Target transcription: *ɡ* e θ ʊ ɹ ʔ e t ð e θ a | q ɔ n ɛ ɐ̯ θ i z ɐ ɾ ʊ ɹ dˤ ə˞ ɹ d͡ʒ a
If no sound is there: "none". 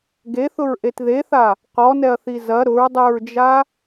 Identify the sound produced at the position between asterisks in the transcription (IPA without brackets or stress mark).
ɡ